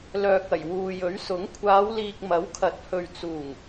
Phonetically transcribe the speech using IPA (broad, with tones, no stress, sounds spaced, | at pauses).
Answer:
l œː˨ k̚ ɐ˨˩ j w uː˨ j ɵ˨˥ ɥ s ʊ˨˥ ŋ kʷʰ aː˨˧ w l iː˨ k̚ m ɐ˨˥ w kʰ ɐ˨˥ t̚ h ɵ˨ ɥ t͡s uː˨˩ ŋ